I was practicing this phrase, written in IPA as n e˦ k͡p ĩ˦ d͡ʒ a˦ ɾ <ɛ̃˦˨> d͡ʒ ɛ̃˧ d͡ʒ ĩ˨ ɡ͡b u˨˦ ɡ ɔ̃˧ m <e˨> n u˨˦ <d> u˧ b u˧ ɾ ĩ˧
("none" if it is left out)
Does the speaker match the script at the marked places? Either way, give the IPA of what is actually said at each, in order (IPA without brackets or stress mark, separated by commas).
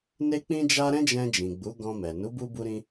ɛ̃˦, ɛ˨, b